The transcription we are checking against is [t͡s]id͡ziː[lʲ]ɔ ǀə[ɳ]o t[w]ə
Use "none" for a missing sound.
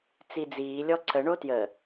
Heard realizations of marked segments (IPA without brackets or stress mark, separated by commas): t͡s, lʲ, ɳ, j